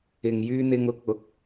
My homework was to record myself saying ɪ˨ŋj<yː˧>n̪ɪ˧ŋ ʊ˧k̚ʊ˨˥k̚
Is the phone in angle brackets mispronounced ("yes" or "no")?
no